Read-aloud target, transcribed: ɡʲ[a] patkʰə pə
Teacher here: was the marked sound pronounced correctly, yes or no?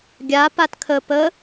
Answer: yes